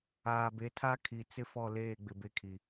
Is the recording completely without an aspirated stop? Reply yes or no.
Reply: no